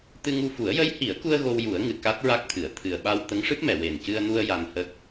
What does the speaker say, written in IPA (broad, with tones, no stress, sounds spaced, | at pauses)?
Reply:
t̪ ɨ˧ ŋ u˧ f u˨˩˦ ə̯ j ə˧˥ j h i˨˩˦ ə̯ k u˧ ə̯ ɣ o˧ w j u˨˩˦ ə̯ ŋ ɨ˨˩ k a˦˥ t̚ ɹ a˦˥ k̚ t̪ʰ ɨ˨˩˨ ə̯ t̪ʰ ɨ˨˩ ə̯ ɓ a˧ w t̪ ə˧˥ ŋ ʂ ɨ˦˥ p̚ m ɛ˨˩˨ w e˨˩ n c ɨ˧ ə̯ n u˧ ə̯ j a˧ n h ə˦˥ k̚